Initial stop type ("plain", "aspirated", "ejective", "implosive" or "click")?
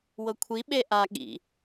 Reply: aspirated